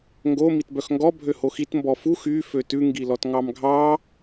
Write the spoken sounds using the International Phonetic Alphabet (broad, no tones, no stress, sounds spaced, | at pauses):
ŋ ɡ o m i t b œ x ŋ ɡ ɔ bʱ ø h o x i t m b ɔ f u x y f ø t ʉ ŋ ɡ i l ɔ t ŋ ɑ m ɡʱ ɑ